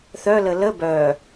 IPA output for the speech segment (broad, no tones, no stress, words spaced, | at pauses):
θœlə lə bœː